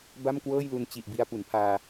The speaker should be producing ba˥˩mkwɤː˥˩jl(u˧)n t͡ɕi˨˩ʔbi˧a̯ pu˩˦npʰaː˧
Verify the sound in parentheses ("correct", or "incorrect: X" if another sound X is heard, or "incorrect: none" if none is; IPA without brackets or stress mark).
correct